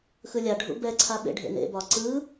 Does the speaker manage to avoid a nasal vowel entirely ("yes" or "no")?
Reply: yes